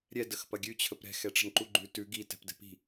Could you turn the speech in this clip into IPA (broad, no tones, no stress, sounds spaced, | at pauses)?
ɾʲ ɛ d ə x p ɐ ɡʲ ʉ t͡ɕʰ ə p ɾ ɛ̤ x ɛ ʈ͡ʂ ə̤ n ǃ u ɡ͡ǃ ʉ t ʉ ɡ i t ɛ̤ p d ɛ̤ p i̤